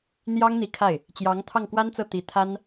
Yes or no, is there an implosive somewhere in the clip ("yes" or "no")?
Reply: no